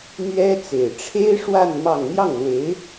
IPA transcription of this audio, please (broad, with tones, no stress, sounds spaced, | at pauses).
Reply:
n̪ ɥ ɛ˥ t͡s e˨˩ ɪ̯ ʈ͡ʂʰ e˥ ɪ̯ ʂ w a˥˧ n m ɑ˥˧ ŋ n̪ j ɑ˥˩ ŋ l w e˧˥ ɪ̯